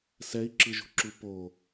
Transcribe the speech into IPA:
s ɛ i̯ ǁ ɯ ʒ ṳ ǁ u p o

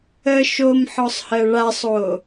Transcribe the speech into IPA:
ə ʃ o m ħ ɔ sˤ h ɜ ɭ a sˤ o

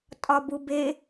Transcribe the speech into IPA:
tʼ ɒ b u b e

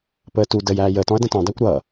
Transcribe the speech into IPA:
p əː t u d ə j æː j əː t ɔ̃ ɐ̯ d ə̃ t ɔ̃ dˤ æ kʷ ɾ ʌ

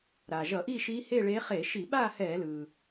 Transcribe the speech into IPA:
ɾ aː˩ ʒ ʌ˧˩˧ ʔ iː˥˨ ʃ iː˧˥ h e˥˨ ɭ eː˧˥ χ e˧˩˧ ʃ i˧˩˧ ɓ aː˥˨ h ɛː˧˩˧ l ɯː˩

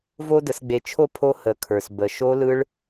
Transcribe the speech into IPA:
v o˦ d ə˧ s ɡ͡b e˧ t͡ʃʰ o˦ pʰ o˧ h ə˨ kʰ ə˞˨ s b ə˨ ʃ o˧ l ɯ˧ ɭ

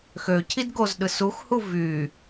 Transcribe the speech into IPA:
x ø cʰ i d ɡ o z ɗ ɯ s u x h u v y

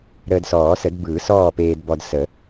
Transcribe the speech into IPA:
ɾ əː˧ d s ɔː˨˩˦ s ə˨˩˦ d b ɯː˨˩˦ s ɔː˥˨ p eː˧ d b ɔ˧ d s ə˨˩˦

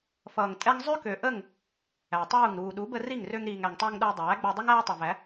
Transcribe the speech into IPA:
f ʌː˨ ŋ tʼ ɛ˦ ŋ zˤ ø˦ k ø˨ ʔ ə˦˨ ŋ | æ˨ tˤ uː˦˨ ŋ ɾ uː˨ ɗ u˨˦ b ə˧ r i˦˨ ŋ r ø˧ ŋ ɾ iː˨ ŋ æ˨ ŋ tˤ ʌː˧ ŋ ɗ ə˞˧ dˤ æː˨˦ ɡ͡b o˧ dˤ ʌ˦ ŋ æː˦ tˤ ʌ˨ v æ˨˦

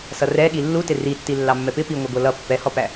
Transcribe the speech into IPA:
s ʌ r ɛ ɠ i lː u t ɪ r i tː i lː ɑ mː ɛ p ɪ p i ŋʷ ə ɡʷ ʌ l ʌ pː ɛ h ɔ p æ

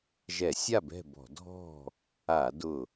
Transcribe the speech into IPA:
ʒ ɛ˧˩˧ sʲ a˥˨ b ɛ̤˥˨ b ɔ̤˧˩˧ dʱ ɔ̤˥˨ | a˧˩˧ d ʊ˧˩

